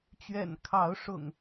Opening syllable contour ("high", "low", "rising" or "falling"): low